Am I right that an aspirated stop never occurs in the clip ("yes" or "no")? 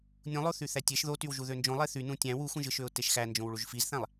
yes